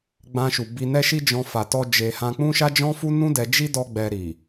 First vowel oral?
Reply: no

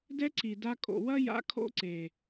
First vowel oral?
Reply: yes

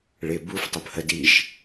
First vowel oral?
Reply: yes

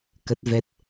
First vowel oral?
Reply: yes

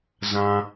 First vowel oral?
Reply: no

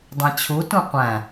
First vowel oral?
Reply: no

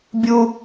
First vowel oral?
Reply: yes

